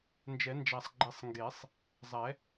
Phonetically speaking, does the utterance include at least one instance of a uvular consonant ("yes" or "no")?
no